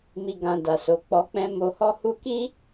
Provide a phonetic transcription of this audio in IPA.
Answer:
m i˨ ɡ ã˨ d a˨ s o˨˦ k͡p ɔ˧ k͡p ɛ̃˦ m o˧ h ɔ˦ h u˦ k i˦

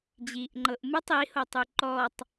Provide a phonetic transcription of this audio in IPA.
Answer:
d͡ʑ iː ʔ ŋ͡ǃ ɤ ʔ m ɯ tˤ i h o tˤ u ǃ ɔ tˤ

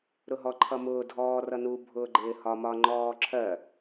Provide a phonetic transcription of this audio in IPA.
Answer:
ɾ ʊ ɦ ɔ ǃʰ ʌ m ʊː dʱ ɔː r ʌ n u bʱ ʊː ɡ͡ǃ ɪː h ɒ m ɒ ŋ͡ǃ ɔː ǁʰ ɜ

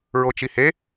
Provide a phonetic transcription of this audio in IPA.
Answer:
ɹ o t͡ʃ i h e

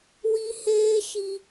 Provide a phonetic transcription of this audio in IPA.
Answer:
w i˦ h eː˦ ʃ i˦

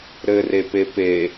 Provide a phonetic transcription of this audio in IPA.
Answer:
ɾ ɘ r e p e p e

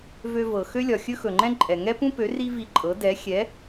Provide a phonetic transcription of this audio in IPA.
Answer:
v ø˧ v ɤ˩ x ø˥ lʲ ɒ˩ xʲ ɵ˥ x ɵ˩ ŋ͡ǃ ɛ̃˥ ǃʼ ɛ˩ ŋ ɛ˥ p ũ˥ p ø˩˥ r i˥ v i˧ ǃʼ ɤ˩˥ d ɛ˩˥ xʲ ɛ˩˥

